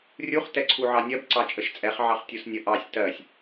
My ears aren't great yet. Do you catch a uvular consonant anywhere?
yes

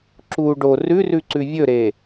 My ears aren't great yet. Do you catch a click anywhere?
yes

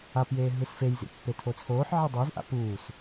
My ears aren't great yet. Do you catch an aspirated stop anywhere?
yes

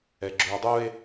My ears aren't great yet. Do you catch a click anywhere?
yes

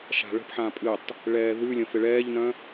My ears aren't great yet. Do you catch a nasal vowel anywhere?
yes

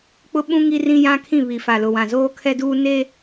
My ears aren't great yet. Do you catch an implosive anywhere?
yes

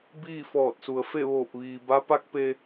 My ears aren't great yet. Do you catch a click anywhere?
no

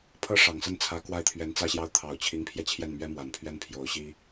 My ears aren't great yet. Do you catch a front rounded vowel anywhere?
no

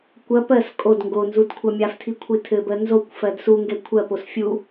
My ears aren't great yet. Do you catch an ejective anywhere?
yes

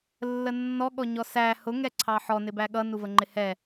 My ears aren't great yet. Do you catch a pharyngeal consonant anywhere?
yes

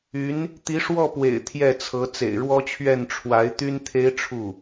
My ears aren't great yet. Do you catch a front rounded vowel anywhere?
yes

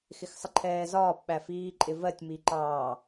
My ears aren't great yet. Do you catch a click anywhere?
yes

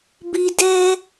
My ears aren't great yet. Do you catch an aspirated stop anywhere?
no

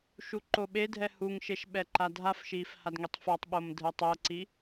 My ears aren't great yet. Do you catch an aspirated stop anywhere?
no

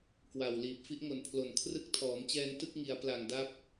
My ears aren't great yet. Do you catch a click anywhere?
no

